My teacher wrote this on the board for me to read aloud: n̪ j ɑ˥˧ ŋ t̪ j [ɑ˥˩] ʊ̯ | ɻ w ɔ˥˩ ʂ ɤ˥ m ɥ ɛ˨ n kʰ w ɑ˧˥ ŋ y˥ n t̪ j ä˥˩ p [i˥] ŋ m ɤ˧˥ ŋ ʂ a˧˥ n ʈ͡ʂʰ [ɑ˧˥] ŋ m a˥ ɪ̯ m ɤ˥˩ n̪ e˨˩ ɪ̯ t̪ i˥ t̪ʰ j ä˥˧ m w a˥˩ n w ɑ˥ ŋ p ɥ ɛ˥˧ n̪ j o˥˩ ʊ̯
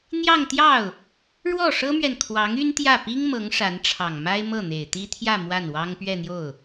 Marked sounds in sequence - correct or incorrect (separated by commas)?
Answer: correct, correct, incorrect